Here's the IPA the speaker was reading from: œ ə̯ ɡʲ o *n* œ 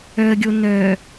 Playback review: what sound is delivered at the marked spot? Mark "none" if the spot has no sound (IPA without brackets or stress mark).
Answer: n